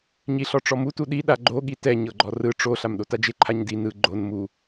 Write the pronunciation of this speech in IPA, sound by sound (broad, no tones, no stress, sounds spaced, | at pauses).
ɲ i ɬ ɔ ʈ͡ʂ ɔ m u t u ɗ i ɗ a ɡ͡ǃ o ɠ i t ɛ ɲ ɤ ɡ͡ǃ ɔ r ɯ ʈ͡ʂ o ɬ a m ɗ o t a d͡ʒ e ǃʰ a ɲ d i n ɯ ɡ͡ǃ o n m u